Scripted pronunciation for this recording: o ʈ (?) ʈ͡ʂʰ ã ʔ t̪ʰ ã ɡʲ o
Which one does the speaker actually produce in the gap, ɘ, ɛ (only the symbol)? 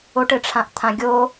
ɘ